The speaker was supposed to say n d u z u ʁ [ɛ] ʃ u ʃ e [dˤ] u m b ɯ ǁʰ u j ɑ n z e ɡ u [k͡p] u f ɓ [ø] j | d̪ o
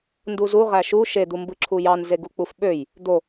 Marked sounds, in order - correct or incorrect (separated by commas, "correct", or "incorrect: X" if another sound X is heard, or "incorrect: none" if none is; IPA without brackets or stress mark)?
incorrect: æ, incorrect: d̪, correct, correct